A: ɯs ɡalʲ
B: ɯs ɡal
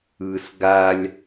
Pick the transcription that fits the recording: A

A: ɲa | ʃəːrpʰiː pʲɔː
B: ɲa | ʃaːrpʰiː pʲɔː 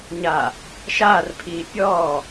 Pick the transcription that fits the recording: B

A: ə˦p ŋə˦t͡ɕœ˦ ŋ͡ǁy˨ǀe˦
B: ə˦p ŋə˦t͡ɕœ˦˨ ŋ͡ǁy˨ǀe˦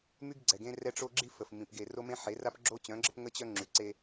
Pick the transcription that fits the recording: A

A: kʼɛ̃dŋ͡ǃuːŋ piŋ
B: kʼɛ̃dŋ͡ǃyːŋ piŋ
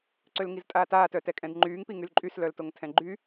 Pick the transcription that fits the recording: B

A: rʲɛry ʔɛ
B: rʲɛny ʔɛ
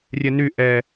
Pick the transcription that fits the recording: B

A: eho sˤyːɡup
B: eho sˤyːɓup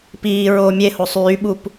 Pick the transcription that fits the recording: B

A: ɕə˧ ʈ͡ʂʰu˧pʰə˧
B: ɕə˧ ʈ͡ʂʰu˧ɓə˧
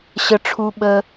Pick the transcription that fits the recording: B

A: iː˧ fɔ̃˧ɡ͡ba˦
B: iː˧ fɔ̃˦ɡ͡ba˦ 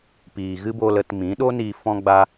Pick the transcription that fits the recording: B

